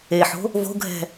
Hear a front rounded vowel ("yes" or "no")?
no